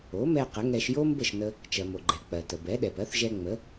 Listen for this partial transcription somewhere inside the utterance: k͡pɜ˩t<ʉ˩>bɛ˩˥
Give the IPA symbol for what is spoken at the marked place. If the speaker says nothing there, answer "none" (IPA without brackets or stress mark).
ə˩